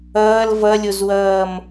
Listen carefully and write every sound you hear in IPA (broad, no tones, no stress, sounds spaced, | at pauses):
ʌː l v ʌ lʲ o z w ʌː m